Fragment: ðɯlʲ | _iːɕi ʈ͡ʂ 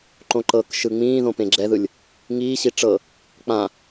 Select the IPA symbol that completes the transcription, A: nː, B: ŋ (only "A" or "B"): B